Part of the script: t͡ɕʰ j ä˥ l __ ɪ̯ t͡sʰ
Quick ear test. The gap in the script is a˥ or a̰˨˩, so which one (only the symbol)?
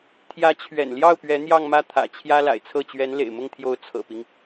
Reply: a̰˨˩